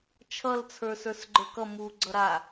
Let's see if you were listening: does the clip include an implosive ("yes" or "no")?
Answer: no